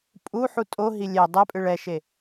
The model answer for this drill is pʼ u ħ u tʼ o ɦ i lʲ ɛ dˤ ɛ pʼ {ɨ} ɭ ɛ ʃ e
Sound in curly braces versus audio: correct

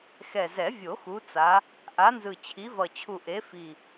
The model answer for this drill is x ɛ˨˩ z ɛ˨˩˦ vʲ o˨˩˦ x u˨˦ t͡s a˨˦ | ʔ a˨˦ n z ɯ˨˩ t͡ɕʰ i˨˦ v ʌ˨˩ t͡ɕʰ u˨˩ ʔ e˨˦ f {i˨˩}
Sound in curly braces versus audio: correct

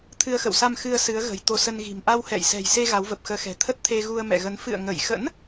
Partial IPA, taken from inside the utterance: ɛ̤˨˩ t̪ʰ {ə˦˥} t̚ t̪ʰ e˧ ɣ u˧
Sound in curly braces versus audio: correct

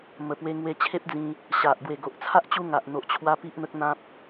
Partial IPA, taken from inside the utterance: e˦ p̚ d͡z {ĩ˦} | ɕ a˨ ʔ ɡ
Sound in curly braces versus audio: incorrect: ĩ˧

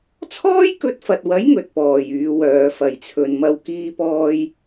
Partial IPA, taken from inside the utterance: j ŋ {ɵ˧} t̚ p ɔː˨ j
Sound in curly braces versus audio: incorrect: ɵ˨˥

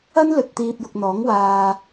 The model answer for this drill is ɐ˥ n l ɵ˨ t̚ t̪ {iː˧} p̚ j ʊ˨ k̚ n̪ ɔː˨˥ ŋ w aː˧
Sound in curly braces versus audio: correct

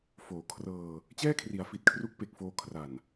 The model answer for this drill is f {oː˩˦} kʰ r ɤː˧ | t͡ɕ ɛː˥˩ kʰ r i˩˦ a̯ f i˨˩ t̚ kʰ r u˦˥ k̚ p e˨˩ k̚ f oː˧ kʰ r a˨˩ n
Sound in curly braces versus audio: correct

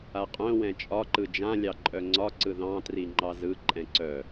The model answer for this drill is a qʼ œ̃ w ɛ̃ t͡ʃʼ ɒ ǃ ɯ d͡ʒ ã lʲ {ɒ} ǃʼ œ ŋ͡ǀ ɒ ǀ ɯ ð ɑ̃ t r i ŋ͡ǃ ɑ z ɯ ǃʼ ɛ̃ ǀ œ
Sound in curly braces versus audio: incorrect: ɑ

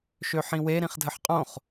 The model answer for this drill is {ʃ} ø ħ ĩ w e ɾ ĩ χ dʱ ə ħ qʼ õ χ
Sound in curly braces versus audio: correct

